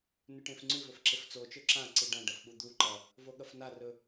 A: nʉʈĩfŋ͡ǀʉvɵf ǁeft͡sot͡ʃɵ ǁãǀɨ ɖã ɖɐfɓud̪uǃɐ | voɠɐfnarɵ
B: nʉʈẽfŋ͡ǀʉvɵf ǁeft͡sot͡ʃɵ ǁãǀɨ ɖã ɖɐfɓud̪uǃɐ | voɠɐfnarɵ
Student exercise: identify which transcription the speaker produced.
B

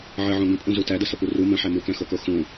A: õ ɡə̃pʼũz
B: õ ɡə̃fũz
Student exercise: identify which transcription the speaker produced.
A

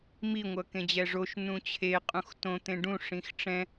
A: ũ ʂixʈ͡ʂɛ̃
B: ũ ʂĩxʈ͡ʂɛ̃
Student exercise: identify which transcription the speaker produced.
B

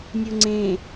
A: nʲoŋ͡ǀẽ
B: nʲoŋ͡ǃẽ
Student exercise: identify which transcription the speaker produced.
A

